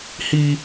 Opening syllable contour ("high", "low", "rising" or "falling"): high